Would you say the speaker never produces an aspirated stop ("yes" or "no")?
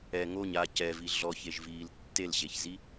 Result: yes